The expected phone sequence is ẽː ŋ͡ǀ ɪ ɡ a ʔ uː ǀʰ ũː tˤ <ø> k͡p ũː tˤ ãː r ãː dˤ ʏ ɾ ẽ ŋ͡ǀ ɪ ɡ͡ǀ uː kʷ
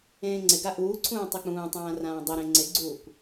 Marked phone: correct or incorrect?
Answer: incorrect: e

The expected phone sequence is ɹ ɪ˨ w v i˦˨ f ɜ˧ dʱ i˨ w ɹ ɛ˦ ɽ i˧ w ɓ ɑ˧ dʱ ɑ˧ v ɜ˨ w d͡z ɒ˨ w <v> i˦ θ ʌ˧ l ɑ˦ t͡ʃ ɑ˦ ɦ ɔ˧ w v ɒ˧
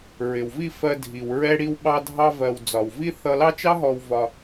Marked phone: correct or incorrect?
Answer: correct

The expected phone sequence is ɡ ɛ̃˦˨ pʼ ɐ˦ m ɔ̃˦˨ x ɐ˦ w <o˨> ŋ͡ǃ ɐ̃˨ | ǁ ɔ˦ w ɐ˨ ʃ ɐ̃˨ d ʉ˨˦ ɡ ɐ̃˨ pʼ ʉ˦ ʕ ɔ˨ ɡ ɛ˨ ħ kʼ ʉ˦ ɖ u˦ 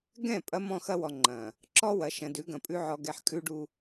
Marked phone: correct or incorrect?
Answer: incorrect: ɔ˨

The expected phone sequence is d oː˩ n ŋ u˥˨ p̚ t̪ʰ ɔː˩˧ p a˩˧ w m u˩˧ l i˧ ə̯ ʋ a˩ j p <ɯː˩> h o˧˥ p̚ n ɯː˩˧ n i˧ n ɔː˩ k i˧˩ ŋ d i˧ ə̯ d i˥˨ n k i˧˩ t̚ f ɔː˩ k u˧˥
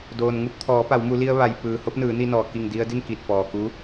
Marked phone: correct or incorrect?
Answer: correct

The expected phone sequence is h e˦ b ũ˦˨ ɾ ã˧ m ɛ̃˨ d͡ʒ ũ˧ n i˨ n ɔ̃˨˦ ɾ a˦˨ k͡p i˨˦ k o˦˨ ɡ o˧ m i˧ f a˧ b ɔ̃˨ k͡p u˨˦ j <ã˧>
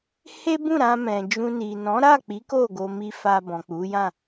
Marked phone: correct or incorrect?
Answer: incorrect: ã˦˨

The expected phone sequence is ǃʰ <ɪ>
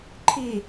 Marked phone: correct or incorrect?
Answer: incorrect: i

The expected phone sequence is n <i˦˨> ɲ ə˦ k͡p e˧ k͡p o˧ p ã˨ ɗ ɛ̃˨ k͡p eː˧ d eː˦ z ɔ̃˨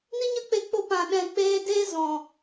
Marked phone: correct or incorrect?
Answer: incorrect: i˦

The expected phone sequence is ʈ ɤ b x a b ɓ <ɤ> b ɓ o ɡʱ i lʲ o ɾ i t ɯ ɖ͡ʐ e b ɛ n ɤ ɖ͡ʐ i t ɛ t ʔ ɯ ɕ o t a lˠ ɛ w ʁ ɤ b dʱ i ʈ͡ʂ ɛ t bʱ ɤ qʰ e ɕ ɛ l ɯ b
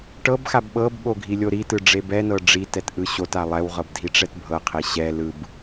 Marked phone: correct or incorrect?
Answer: correct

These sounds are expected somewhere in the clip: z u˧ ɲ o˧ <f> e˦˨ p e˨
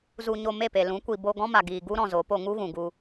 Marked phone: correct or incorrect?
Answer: incorrect: m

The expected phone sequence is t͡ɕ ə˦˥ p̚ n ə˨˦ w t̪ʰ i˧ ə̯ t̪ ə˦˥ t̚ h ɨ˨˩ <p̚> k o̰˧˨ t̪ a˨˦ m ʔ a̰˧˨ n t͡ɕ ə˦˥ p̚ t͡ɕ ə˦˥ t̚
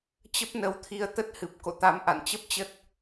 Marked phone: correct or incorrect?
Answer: correct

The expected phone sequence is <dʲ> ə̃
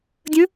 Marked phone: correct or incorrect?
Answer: correct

